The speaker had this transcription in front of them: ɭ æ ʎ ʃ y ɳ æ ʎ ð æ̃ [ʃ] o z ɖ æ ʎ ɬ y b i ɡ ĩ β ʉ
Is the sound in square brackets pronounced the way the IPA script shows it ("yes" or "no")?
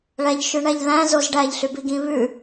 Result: no